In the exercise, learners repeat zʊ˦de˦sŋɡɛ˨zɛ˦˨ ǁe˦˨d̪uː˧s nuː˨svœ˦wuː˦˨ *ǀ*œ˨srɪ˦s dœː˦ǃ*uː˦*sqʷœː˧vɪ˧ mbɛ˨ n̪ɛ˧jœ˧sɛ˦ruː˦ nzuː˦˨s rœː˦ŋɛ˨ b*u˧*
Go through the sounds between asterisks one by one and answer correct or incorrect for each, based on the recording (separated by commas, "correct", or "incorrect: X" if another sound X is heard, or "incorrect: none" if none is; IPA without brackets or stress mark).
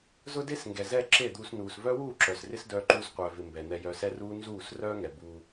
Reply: incorrect: ǁ, correct, correct